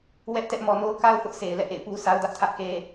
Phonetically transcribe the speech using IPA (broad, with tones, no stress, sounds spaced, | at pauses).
w ɛ˦ ʔ t ɛ˦ ʔ m ɔ˨ n o˦ ʊ̯ k a˦ ʊ̯ θ ʊ˦ ʔ s e˨ ɪ̯ l ɛ̰˦˨ ʔ ḛ˦˨ ɪ̯ p u˦ s a˦ ʊ̯ d ä˦ ʔ tʰ ä˦ ʔ k e˦